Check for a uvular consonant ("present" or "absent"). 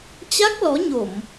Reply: absent